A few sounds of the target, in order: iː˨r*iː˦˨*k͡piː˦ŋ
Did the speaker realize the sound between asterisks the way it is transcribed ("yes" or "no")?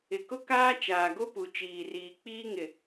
no